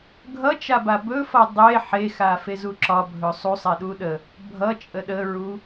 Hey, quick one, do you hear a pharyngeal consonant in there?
yes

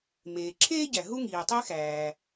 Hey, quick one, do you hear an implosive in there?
no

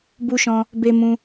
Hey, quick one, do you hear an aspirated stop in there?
no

